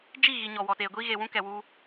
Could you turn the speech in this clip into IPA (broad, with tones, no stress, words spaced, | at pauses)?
d͡ʒi˦˨ɣi˨ ɲɔ˨wɔ˨teː˨ɡʷi˦ ɣeː˨wũ˦kɛ˨wu˦